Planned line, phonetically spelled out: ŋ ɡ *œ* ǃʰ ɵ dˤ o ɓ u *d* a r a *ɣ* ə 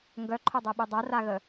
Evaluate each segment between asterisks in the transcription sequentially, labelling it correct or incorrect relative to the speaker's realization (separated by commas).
correct, incorrect, correct